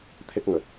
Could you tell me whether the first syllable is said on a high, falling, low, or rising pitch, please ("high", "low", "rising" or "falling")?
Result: high